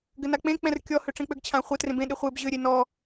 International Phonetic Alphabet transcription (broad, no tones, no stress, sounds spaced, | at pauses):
ɡ ɘ n a k͡p ẽ k͡p ɛ̃ r kʲ ɔ h ø ʈ͡ʂ ẽ k͡p ø ɡ t͡ɕʰ ã χʷ ɘ t r ẽ b ẽ ɗ e χʷ e b ʑ ø ɾʲ e n ɔ